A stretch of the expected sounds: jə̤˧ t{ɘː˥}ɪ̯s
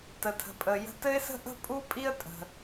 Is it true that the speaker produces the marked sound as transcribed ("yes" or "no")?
no